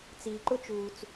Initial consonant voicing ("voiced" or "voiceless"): voiceless